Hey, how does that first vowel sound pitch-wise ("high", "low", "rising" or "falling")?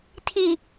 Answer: low